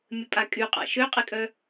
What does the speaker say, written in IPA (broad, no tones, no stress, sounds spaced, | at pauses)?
mʲ ə pʼ a kʼ y qʼ a̰ ʃ ø qʼ e kʼ œ